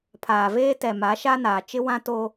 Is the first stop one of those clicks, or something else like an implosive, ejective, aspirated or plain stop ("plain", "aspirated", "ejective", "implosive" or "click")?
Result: aspirated